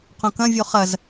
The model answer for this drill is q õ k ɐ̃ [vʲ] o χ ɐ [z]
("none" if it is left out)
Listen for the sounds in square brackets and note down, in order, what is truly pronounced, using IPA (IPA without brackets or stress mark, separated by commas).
vʲ, z